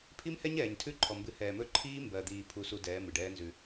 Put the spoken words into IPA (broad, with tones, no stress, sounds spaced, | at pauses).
pʰ i˦ m h ɛ˦ ɲ ɛː˨ ɲ tʰ ʉ˦ ǃʰ ɔ˨ m b ɨ˨ h ɛː˨ m ɵ˦˨ ǃʰ iː˦ m b ɜ˨ d̪ iː˨ pʰ u˦ s u˦ d ɛː˨˦ m ɨ˨ ɖ ɛː˦ n z ʉ˦